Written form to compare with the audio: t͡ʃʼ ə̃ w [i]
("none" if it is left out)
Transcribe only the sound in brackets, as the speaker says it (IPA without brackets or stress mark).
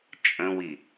i